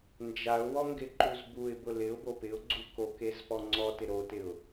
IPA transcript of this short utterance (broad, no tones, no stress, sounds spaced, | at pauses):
n d͡ʒ a ʊ̯ w ɔ ŋ ɡ ɪ ǃ u z b u ɪ̯ b ʊ l ɪ ʊ̯ b o p ɪ ʊ̯ ɡ͡ǀ u k o k e z p ɔ ŋ͡ǀ ɔ t ɪ ɾ o t ɪ ʊ̯